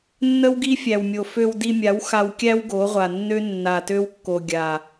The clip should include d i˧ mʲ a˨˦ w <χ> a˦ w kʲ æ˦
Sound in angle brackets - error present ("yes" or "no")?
yes